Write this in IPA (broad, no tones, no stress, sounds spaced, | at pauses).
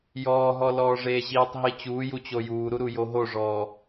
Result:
j ɔː ɦ ɔ l ɔː ʐ eː ʑ iː tˤ ɦ i t͡ɕ uː j u t͡ɕ o j uː ɾ u ɾ u j o ɦ o ʐ ɔː